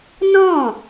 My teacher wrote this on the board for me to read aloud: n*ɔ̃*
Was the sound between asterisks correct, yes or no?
yes